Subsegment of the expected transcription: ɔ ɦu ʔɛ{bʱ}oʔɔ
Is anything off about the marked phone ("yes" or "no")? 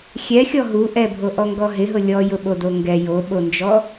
no